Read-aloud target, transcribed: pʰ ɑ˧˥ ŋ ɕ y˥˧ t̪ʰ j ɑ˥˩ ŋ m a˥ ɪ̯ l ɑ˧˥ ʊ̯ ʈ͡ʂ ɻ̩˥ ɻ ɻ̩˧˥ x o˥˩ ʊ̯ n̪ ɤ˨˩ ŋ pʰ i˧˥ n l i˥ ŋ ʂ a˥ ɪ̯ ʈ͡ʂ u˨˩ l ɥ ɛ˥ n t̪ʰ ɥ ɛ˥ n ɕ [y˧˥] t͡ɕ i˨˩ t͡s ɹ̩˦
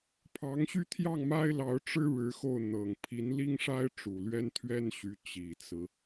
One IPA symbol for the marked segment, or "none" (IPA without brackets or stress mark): y˧˥